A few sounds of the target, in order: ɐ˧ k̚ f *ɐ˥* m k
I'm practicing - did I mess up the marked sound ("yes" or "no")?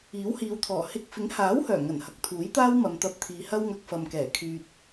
yes